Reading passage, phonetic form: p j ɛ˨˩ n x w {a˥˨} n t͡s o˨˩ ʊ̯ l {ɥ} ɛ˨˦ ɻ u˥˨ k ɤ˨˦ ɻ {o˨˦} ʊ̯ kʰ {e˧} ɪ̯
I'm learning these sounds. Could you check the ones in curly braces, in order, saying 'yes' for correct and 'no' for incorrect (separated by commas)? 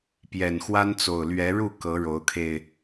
no, yes, yes, yes